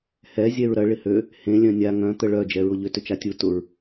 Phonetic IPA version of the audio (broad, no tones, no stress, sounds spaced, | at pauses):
h ɛ zʲ ɛ ɹ ɾ ɐ ɭ ɪ h ø | h ẽ lʲ œ̃ nʲ a ŋ œ̃ t̪ ə ɭ œ d͡ʒ ɛ ɹ ʊ ʎ ʏ t ʏ t͡ʃ a tʲ u t ʊ ɹ